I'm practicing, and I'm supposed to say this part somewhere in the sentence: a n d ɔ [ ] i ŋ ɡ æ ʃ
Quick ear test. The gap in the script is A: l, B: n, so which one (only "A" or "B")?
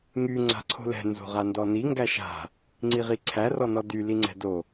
B